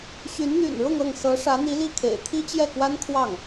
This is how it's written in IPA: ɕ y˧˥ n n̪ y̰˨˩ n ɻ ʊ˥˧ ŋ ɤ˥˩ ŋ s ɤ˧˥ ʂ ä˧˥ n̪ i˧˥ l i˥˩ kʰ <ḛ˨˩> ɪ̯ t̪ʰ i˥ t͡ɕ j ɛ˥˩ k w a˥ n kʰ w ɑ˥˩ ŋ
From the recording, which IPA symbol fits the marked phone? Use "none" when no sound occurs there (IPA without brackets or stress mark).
ḛ˨˩